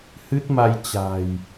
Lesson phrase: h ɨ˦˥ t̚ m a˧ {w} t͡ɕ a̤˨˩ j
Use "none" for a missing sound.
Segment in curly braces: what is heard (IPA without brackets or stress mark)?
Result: j